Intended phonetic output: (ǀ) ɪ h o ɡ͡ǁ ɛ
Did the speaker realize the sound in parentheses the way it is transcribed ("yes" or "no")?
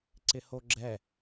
yes